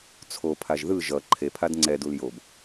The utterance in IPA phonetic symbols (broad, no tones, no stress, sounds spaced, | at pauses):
t͡sʰ o pʰ a ʒ ð ɯ ʒ ʌ ǃʰ e pʰ a d ŋ͡ǀ ɛ d u l j o b